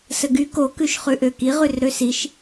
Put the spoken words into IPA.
səɡy kokʉʃχʉ ʔøki ʁʉrɾøsiʃ

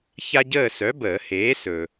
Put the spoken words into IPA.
ça˥ ɟəː˦˨sœ˨˥ bəː˨˩˦heː˨˥ sɵ˨

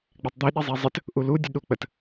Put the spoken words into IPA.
ɡ͡bætˤd̪iɗi zˤizˤɘt | ʔuludʲə ɗuk͡pət

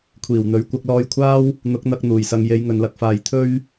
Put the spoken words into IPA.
kʷʰiː˨˩wn̪ɵ˨˥ɥ kʷɐ˧k̚lɔː˧jkʷʰaː˥w | n̪ʊ˨˥k̚n̪ɐ˧k̚ n̪uː˨˩jsɐ˨ŋ je˨˧jŋɵ˨nlɐ˨˥k̚faː˨j t̪ʰɵ˥ɥ

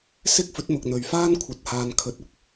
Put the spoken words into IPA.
sɪ˥k̚fɵ˨˥t̚mʊ˨k̚ n̪ɵ˨ɥfaː˥n kʷʰɐ˧t̚haː˧n kʰɵ˨˥t̚ʊ˧k̚

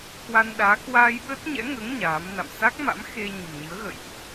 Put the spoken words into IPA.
kwa˧nɗaː˨˦ kwaː˧jɓə˦˥t̚ɲɛ̰˧˥ŋəː˨˦ŋ ɲaː˨˦mna̰˧˨m sa˦˥k̚ma̰˧˥m xe˧ ɲə̤˨˩mɲɨ˨˦ə̯ɣə̰˧˨jʔ

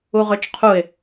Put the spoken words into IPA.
uʁɵt͡ʃqʰuɪ̯

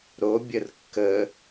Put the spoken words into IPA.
ɾobʲər kːə

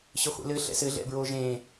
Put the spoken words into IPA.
ɕɘχʷḛlɘ ɬɛ̰sɘ ɮɛ̰bɹoːʒẽː

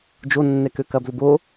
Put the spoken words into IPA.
d͡ʒonːɛkø kɐblʏbo

